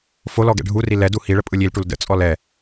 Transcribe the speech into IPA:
f o l ɔ ɡ ɛ̰ ɖʱ u r i l ɛ d u h i ɭ ə pʼ ɯ lʲ i l ʈ u l d ə̰ t͡sʼ ɔ l ɛ

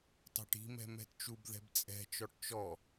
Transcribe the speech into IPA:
t ɑ̤ ʈ i̤ m ɛ̤ m ɛ̤ t t͡ʃ u b ð ɛ̤ b t͡sʼ ɛ̤ t͡ʃ ɔ ʈ t͡ʃ ɔ

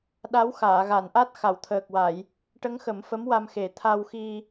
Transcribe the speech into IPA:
ɗ a˧˥ w x aː˨˩˨ ɣ a˨˩˨ n ʔ a˦˥ t̚ x a˨˩˨ w t̪ʰ əː˨˩ k̚ w a˨˩˨ j | ʈ ə˧˥ ŋ x ə˨˩˦ m f ə˧˥ m w a˧ m x e˨˩˦ t̪ʰ a˧ w x i˧

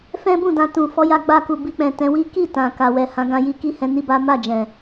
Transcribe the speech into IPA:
f ɛ̃˦ b ũ˦˨ d ã˧ t ũ˨ f ɔ˨˦ j a˧ ɡ͡b a˧ k u˨ b i˧ k͡p ɛ̃˨ t ɛ̃˨˦ w i˦ k i˦˨ t ã˨ k a˨ w ɛ˨ h ã˨˦ ɡ ã˧ j i˧ k i˦ h ɛ̃˧ n i˦ b a˦ m a˦˨ d͡ʒ ɛ̃˨

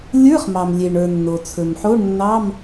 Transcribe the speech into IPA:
lʲ ə˞˧˥˧ χ m ɑ˩ m lʲ e˩ ɳ ə˞˩ nː o˩ t͡sʰ ɵ˩ m ħ o˧˥˧ ɳ nː ɑ˧˥˧ m

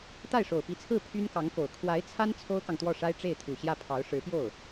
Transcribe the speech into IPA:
t̪ a˥˩ ɪ̯ ʂ o˨˩ ʊ̯ p i˧˥ t͡sʰ ɹ̩˥˩ pʰ y˥ n k ɑ˧˥ ŋ k o˨˩ ʊ̯ kʰ w a˧˥ ɪ̯ t͡sʰ a˥ n t͡sʰ o˥ ʊ̯ k ɑ˨ ŋ t̪ w ɔ˥˩ ʂ a˥ ɪ̯ ʈ͡ʂ e˥˩ ɪ̯ t̪ʰ u˨˩ ɕ j ä˥˩ pʰ ɑ˧˥ ʊ̯ ʂ ɻ̩˧˥ p j o˥˩ ʊ̯

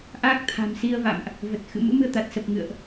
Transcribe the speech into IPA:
ʔ aː˦˥ k̚ t̪ʰ a̤˨˩ m s i˧ ə̯ v a̰˧˨ m ʔ | v ə˨˩ t̚ x ɨ̰˧˨ m ɨ̰˧˥ m ɨ˧ ə̯ t̪ a˨˩ t̚ s ə˨˩ p̚ ŋ ɨ̰˧˨ ə̯ ʔ

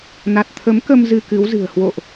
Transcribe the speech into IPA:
n a˨˩ t̚ t̪ʰ ə˨˦ m k ə˧ m z ɨ˧ k ɨ˨˦ w z ɨ̤˨˩ ə̯ h w o̰˧˨ ʔ

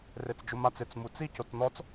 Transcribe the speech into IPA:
r e t͡s d͡ʒ ʊ m a t͡s ɪ t͡s m u t͡s i c o t͡s n ɔ t͡s

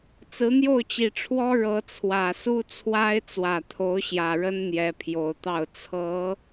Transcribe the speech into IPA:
t͡s ɹ̩˧˥ n̪ j o˥˩ ʊ̯ t͡ɕ i˨˩ ʈ͡ʂʰ w ɔ˥ ɻ ɤ˧˥ t͡sʰ w ä˨˩ s u˥ t͡sʰ w a˥ ɪ̯ t͡s w ä˨˩ t̪ʰ o˧˥ ʊ̯ ɕ j ä˨˩ ɻ ə˥ n n̪ j ɛ˧˥ pʰ j o˨˩ ʊ̯ t̪ ɑ˥˩ ʊ̯ t͡sʰ ɤ˧˥

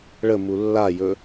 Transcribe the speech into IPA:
ɭ ə m u lː a j ɵ

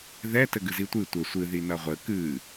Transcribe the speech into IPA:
ð ɛ t ɘ ɡ ɨ z i tʷ ɨ tʷ ɘ sʷ ɨ ð i n ɐ ʁʷ ɘ k ɨ

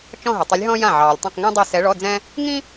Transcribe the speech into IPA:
t͡ʃ ɔ̃˥˧ ɦ ɪ˨ tˤ ɪ˧˥ lʲ ɦ ɔ̃˥ j ã˥˩ ʕ ɑː˨ lʲ tˤ ɛ̃˥˧ q ŋ ĩ˥ dˤ ɛ˥˧ s ɛ˧˥ ɭ ɔ˧˥˧ d͡z ɛ̃˥ | ŋ ĩ˥

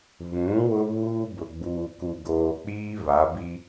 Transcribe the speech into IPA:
β ũ˨˦ w ʊ˦ β uː˦ b ʊ˨ ɡ͡b uː˨ k u˨ ɡ oː˨ k͡p iː˦ β a˨˦ b i˦

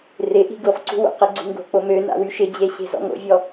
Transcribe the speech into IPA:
r ɪ ʔ i̤ ɡ u χ ǀ ṳ w o̰ q e ɡ͡ǀ ṳ ŋ ɡ o̤ k͡p o m ø n a̰ w y ʃ ɪ d͡ʑ e ɕ e̤ z ɔ̰ ŋ o̰ vʲ ɔ

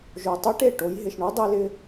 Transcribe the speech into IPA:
ʒ o˨ tˤ ɯ˦ ʈ e˦˨ ʈ o˨˦ j ɦ ɪ˨ ʃ ɳ u˦ dˤ e˦ l ɪ˦

